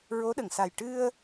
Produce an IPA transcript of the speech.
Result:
ɹo˧˥ɗə˨˩˨ŋsa˨˩j ʈɨ˧ə̯

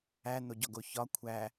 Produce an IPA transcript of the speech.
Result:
æn̪oɟɒɡo çɒ kʷʰæ

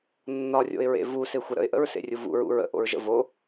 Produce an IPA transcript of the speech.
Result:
nːɒrʲo̰ɪ̯ɹḛ vusexʷə ɾə̰ɪ̯ʔə̰ɹsḛrʲu vṵɹṵ ɹə̰ʔo̰ɹʒə̰ vo

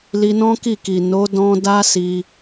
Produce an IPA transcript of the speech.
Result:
li˧nɔ̃˦ki˦˨ki˨ no˨˦dɔ̃˧da˦ si˧

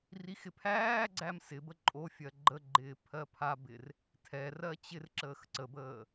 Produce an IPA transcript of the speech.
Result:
rixɪpʰæːɡ͡ǀæm sɪbə ǃʼofʲɜ ɡ͡ǃəɡ͡ǃɪː pʰɜpʰabɪr | tʰɛ rɜt͡ɕɪrǁəːx ǀəbəː

